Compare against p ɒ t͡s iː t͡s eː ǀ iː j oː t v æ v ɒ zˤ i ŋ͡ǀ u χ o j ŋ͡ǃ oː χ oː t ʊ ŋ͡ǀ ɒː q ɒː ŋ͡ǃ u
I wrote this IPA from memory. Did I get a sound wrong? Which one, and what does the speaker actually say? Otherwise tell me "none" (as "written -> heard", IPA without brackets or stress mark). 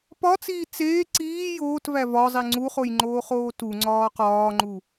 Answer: ʊ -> u